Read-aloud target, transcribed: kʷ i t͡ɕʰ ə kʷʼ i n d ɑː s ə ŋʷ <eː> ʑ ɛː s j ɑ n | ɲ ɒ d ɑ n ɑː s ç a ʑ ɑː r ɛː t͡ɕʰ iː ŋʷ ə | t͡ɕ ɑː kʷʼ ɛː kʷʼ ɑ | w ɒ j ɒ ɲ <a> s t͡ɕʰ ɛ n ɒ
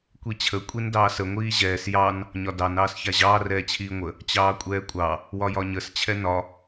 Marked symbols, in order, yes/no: no, no

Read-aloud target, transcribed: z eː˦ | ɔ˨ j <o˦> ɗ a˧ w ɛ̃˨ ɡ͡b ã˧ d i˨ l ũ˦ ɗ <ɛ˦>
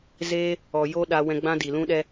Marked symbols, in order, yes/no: yes, yes

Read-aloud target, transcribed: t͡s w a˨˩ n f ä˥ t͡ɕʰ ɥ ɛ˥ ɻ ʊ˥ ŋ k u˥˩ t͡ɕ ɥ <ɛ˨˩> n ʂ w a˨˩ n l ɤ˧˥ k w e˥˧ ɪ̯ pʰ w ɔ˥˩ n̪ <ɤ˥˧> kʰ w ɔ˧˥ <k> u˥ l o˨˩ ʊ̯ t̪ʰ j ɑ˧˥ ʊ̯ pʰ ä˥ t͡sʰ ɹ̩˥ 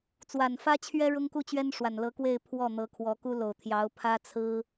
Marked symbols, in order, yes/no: no, no, yes

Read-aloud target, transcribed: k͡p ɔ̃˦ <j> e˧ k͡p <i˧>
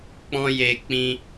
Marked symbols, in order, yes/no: yes, no

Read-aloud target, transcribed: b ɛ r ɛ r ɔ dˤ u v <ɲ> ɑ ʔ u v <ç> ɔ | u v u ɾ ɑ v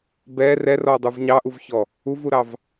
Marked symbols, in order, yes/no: yes, yes

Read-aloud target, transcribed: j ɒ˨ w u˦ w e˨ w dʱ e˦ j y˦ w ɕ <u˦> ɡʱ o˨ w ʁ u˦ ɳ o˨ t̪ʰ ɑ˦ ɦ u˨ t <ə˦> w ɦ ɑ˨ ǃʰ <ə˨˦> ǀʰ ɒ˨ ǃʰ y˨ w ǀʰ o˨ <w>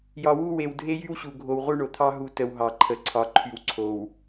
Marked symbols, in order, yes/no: no, yes, no, yes

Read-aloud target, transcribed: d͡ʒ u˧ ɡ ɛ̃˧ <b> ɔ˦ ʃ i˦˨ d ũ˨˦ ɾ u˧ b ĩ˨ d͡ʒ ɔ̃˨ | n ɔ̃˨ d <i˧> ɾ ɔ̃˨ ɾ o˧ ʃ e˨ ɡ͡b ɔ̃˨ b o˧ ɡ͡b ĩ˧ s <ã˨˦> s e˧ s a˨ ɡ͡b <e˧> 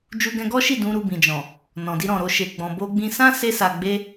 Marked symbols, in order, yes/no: no, yes, no, yes

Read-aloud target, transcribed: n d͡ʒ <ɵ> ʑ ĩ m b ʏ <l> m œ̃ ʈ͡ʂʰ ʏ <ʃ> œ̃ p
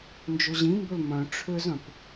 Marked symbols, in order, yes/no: yes, yes, no

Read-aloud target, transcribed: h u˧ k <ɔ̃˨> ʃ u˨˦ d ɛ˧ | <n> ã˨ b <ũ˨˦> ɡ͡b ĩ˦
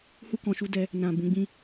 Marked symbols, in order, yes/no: yes, yes, yes

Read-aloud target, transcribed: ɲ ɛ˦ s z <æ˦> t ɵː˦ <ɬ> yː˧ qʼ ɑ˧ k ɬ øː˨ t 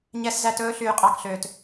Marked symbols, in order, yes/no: yes, yes

